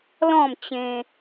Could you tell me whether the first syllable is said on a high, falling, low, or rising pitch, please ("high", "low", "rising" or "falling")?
falling